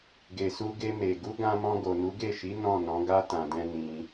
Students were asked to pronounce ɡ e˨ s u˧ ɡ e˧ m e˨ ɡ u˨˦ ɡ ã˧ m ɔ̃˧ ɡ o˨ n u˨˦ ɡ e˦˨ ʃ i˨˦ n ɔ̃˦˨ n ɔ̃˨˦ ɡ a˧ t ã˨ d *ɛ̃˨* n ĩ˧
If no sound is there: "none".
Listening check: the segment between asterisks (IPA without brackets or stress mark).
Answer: ɛ̃˧